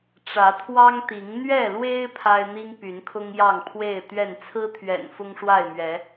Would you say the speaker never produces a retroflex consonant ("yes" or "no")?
no